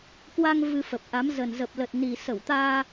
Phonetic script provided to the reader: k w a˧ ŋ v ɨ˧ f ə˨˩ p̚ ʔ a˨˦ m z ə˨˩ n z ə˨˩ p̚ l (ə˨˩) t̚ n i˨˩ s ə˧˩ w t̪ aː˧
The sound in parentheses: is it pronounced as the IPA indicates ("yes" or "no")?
yes